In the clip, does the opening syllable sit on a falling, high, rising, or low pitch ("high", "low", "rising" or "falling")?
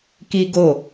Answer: high